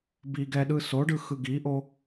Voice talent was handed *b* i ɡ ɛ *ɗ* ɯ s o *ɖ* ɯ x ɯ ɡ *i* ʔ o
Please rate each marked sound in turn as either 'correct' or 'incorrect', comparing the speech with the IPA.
correct, correct, correct, correct

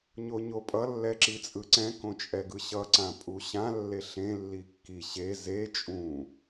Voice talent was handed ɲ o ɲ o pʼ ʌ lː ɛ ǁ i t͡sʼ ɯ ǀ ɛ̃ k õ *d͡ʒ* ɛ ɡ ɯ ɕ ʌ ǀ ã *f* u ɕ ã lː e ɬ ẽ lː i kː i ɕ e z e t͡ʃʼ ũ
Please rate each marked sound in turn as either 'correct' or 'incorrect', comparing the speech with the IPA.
incorrect: t͡ʃʼ, incorrect: pʼ

